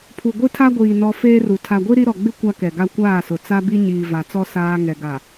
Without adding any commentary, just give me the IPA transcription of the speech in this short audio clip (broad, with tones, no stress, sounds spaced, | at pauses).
pʰ u˨ ɡʷ i˦ tʰ a˦ ɡʷ iː˨ n ɔ˦ f eː˦ r u˨ tʰ a˨ ɡʷ i˦ ɾ i˦ ɾ ɔ˨ ɡ͡b ɪ˦ kʷ a˦ k ɛ˨ ɡ a˦ kʷ aː˦˨ s ʊ˨ t͡s a˦ b i˦ ɲ iː˨ v a˨ t͡s ɔ˦ s aː˦ ŋ ɛ˨ ɡ a˨